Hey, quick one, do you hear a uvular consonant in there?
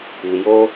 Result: no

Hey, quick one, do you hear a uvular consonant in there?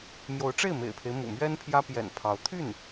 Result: no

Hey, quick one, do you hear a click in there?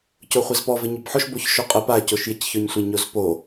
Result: no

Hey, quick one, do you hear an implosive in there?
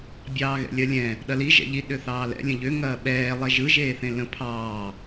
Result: yes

